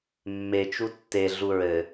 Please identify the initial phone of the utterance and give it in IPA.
mː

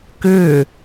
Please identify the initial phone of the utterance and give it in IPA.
k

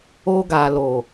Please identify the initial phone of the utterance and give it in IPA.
o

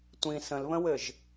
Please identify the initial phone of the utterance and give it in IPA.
tʷ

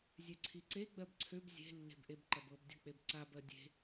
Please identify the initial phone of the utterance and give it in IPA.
zʲ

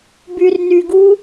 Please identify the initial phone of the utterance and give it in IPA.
b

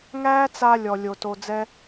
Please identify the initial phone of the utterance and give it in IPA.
ŋ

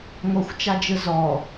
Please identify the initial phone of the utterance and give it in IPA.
ŋʷ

